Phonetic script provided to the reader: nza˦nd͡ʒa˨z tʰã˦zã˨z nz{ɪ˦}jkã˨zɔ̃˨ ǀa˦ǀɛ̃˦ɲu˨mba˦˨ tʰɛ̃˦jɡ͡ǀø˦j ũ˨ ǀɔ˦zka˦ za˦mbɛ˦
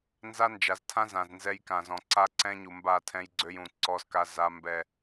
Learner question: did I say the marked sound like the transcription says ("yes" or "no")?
no